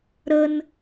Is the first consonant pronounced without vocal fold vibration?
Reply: no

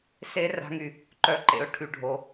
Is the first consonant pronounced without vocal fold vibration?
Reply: yes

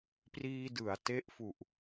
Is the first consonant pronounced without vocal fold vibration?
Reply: yes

